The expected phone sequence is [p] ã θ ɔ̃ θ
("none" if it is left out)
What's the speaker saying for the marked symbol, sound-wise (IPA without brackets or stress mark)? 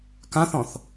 k